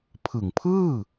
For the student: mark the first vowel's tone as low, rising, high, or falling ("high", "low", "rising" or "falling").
low